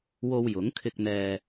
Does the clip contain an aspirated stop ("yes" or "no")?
yes